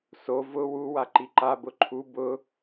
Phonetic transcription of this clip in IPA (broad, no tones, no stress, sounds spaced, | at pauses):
s o v ʊ w u w a ǃ i ǃ a b ʊ ǃʰ u b ʊ